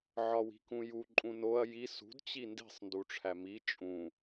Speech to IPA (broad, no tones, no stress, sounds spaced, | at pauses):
ʕ ɒ w i̤ k ũ j u ǃʼ ũ n o ɐ̯ j i s ṳ d t͡ɕ i n d i̤ sˤ n d u ʈ͡ʂʰ æ m i t͡ʃʼ ũ